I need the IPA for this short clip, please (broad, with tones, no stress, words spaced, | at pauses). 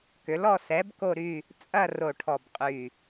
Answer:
kʏ˩˥lɔ˦˨ sɛ˩˥b ko˦˨ɾy˦˨ | t͡sʼɐ˦˨ ro˦˨ʈʰɔ˦˨bqʼy˦˨